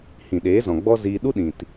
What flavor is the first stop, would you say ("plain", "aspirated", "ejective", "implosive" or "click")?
implosive